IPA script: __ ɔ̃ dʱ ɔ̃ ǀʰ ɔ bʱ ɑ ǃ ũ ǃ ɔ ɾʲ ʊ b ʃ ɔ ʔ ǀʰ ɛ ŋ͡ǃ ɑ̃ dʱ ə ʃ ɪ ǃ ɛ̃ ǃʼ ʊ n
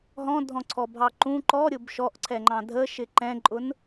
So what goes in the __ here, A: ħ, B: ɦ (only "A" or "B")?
B